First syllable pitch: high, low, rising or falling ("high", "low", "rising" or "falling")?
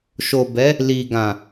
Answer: low